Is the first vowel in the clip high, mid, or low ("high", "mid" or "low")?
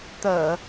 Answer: mid